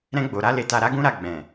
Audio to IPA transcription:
ɾ ɛ̃˧ ɡ͡b o˨ ɾ a˧ l e˨ t a˨ ɾ a˨˦ ɡ ũ˦ ɾ a˦˨ ɡ͡b ɛ̃˨

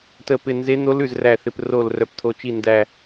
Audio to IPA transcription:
t ə˥˧ p ɪ˥˧ n z e˦˥ n̪ o˦˥ l ʉ˥˧ z r æ˥˧ θ ɪ˦˥ p r o˥˧ l r œ˦˥ p t̪ʰ o˦˥ t͡ʃ i˥˧ n d æ˥˧

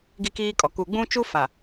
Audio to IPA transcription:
ɡ i˦ k iː˦ kʼ ɔ˨ k u˨ ɡ͡b ũ˦ t͡ʃ u˦ f a˨

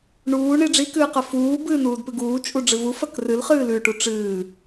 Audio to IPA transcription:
ɳ uː ɳ i ɖ͡ʐ i k ɨː q ɐ f uː b ɨː n uː d p ɨ ɡ uː t͡ʃʼ u ɖ͡ʐ ɨ v u f ɐ k r ɨ l χ ɨː l ʉ ʈ u ʈ͡ʂ ɨː

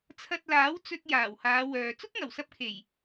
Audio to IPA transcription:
t͡sʰ ɐ˧ t̚ l aː˨˥ w t͡s ɵ˧ t̚ j aː˨˩ w h aː˨˧ w œː˨ t͡s ʊ˥ k̚ ŋ ɐ˨˩ w s ɐ˧ p̚ kʰ e˨˩ j

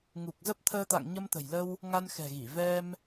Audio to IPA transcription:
ŋ u˨˩ k̚ z ə˦˥ p̚ t̪ʰ əː˧ t̪ a̰˧˨ ŋ ɲ ə˧ m t̪ ə̤˨˩ j l ə˧ w | ŋ a˧ n x ɛ̤˨˩ ɣ i˧˩ v ɛ˧ m

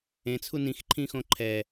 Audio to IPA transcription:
ẽ t͡sʰ u n ĩ x ǃʰ ĩ x õ ǃʰ ɛ

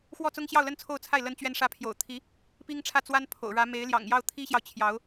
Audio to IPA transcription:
x w ɔ˥˩ t͡s ʊ˥ ŋ ɕ j ɑ˥˧ ʊ̯ l ə˥˧ n t͡sʰ o˥˧ ʊ̯ t͡sʰ a˥˩ ɪ̯ l ə˥ n t͡ɕ ɥ ɛ˥ n ʂ ä˧˥ pʰ j o̰˨˩ ʊ̯ t̪ʰ i˧˥ | p i˥ ŋ ʈ͡ʂʰ ä˥˩ t͡s w a˥ n pʰ o̰˨˩ ʊ̯ ɻ ä˧˥ m e˧˥ ɪ̯ l j ɑ̰˨˩ ŋ j ɑ˥˩ ʊ̯ t̪ʰ i˥ ɕ j ɑ˨ ʊ̯ t͡ɕʰ j ɑ˧˥ ʊ̯

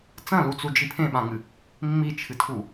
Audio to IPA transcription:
t͡s ɐ̃ l u t͡s u d͡ʒ i pʰ ẽ ɓ ã ŋ ɨ | mː i t͡ʃʰ ɨ tʰ u

